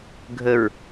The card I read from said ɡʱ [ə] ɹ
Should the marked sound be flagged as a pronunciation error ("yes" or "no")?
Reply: no